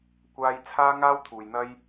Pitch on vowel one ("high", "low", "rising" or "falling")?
high